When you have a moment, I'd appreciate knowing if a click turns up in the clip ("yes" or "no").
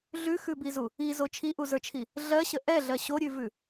no